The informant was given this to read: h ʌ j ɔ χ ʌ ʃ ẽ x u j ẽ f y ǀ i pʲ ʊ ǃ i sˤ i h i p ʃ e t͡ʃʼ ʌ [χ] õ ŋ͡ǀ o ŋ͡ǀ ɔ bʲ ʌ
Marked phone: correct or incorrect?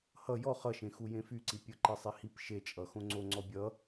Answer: incorrect